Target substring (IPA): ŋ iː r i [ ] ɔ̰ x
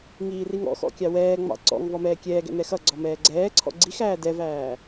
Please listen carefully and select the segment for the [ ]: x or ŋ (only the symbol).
ŋ